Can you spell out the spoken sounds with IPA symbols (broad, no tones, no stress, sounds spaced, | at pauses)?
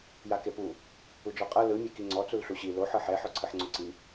j a k e p u | u d͡ʒ ɔ qʼ ɤ l ɯ mʲ e k i ŋ͡ǀ ɔ t͡s u l ɬ u ɕ i l o ħ ɤ ħ ɛ ħ ɔ ǀʰ ɯ ħ ŋ͡ǀ o ǀ i